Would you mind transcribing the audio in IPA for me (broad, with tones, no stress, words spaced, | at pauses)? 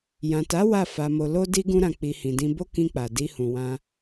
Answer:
jã˨ta˨˦ wa˦˨ fa˧mo˧ lo˦ di˦ ɡũ˦ɾã˧ k͡pi˧ hĩ˨dĩ˧ bo˦kĩ˧k͡pa˨ di˧hũ˨wã˧